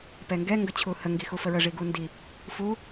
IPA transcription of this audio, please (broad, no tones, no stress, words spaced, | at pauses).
pɛŋɡɛ ŋɡət͡ɕʰuhə ŋɡixufəɹə ʐiɡundi | fu